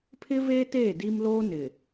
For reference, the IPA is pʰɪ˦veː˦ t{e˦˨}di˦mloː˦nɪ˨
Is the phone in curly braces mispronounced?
yes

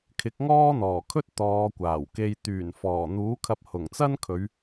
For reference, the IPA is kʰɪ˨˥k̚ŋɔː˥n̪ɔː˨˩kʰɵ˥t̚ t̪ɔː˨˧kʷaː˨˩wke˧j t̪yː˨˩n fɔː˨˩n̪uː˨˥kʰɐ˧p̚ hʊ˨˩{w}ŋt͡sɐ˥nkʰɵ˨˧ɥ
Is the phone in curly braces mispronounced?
yes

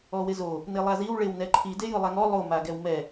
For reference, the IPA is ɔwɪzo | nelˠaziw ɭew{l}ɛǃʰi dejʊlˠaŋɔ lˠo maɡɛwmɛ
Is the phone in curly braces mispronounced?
yes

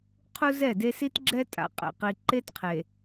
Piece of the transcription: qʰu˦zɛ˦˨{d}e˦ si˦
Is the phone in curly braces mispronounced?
no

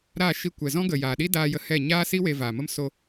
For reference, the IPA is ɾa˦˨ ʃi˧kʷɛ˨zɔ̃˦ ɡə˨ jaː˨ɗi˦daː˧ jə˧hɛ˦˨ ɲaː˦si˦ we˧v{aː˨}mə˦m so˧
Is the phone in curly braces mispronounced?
no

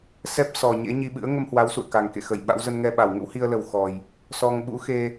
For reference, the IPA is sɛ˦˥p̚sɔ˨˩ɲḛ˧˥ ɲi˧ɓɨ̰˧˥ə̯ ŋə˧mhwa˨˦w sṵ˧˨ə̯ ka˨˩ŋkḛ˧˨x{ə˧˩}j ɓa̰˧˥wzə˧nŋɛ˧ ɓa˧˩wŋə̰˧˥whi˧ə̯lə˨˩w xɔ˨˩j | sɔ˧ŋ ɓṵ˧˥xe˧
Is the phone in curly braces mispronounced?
no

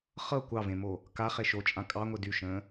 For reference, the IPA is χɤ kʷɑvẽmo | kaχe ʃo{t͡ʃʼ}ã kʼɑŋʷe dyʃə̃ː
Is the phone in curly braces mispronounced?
no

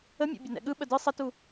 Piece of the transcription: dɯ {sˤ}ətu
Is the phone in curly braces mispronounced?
no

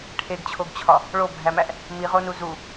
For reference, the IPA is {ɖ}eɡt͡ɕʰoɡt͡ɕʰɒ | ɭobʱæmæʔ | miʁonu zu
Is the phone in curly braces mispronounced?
yes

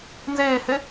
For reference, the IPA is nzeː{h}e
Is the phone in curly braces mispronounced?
no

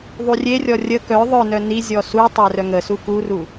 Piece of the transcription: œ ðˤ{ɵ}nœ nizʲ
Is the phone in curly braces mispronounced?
yes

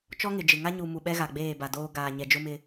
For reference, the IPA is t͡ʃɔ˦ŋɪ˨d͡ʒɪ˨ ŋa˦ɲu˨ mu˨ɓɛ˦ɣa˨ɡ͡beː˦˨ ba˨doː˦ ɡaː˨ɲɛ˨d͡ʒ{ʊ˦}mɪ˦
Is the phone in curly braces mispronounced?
no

